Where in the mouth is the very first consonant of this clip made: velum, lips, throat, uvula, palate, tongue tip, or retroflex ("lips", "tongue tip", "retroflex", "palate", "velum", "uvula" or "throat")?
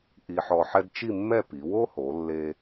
throat